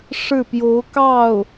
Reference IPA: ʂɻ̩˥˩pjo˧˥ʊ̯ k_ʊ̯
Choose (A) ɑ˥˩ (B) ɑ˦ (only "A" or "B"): A